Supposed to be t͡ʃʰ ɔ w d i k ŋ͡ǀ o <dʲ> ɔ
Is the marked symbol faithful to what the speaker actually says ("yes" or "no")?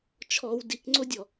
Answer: yes